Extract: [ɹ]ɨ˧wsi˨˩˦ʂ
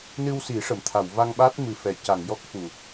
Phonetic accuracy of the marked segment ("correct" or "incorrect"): incorrect